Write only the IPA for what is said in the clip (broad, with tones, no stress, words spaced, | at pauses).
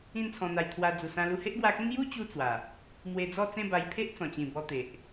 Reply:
ĩ˥˧nt͡sʰɔ̃˧n̪a˧j t̪ʰwa˧d͡zu˨˩sã˧ lu˧he˦ʔɡwa˧kĩ˦n ju˦ t͡ɕu˦ t͡swa˨˩ | mwe˧d͡zɔ˥˧ t͡sẽ˥˧ba˧jpʰe˦ʔ t͡sɔ̃˨˩t͡ɕĩ˨˩bɔ˧ t̪e˨ʔ